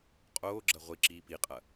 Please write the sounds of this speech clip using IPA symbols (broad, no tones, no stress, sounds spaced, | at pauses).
qʼ oː ɡ͡ǁ ɐ ʁʷ i ǁ iː p i qʼ ɐ